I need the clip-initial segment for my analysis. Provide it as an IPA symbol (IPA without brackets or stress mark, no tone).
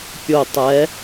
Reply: pʲ